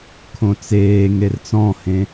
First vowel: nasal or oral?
nasal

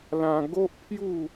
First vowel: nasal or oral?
nasal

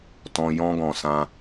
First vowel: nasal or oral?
nasal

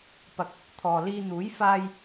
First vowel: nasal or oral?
oral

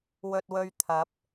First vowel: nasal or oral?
oral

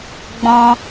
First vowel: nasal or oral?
nasal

